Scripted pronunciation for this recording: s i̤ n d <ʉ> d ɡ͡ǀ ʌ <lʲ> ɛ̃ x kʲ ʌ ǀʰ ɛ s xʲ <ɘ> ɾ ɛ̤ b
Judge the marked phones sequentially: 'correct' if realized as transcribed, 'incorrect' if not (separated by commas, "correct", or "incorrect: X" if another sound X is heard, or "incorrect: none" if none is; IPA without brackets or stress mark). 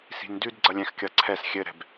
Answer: correct, correct, correct